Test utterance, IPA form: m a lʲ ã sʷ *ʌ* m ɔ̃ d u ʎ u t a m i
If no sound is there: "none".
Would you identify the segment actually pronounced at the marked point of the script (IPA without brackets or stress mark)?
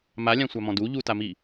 a